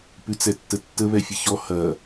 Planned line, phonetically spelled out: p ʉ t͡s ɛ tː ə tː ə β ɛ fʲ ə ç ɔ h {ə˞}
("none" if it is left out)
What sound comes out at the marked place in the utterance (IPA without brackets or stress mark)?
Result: ɐ